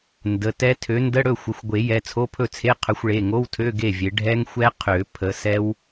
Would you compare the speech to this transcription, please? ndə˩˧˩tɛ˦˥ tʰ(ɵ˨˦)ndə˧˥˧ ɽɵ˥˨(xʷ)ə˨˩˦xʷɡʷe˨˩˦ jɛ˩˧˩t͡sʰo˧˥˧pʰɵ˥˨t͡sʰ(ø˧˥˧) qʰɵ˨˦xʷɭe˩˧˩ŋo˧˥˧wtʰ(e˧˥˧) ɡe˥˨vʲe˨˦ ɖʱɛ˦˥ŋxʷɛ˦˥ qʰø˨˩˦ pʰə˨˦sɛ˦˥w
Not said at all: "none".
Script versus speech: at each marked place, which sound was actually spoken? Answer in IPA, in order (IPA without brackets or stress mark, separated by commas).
ø˨˦, xʷ, e˧˥˧, ø˧˥˧